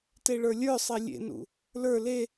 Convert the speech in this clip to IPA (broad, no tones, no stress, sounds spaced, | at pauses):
t e ɭ ə˞ lʲ ə˞ sˤ e lʲ ḛ n ṵ | l ə˞ l e